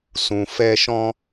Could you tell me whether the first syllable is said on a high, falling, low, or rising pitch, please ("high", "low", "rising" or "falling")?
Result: low